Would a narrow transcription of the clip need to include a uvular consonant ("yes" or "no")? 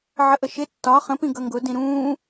yes